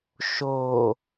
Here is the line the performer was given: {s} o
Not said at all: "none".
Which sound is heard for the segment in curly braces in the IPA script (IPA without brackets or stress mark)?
ʃ